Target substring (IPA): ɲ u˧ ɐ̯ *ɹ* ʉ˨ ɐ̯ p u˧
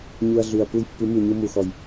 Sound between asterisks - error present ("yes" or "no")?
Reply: yes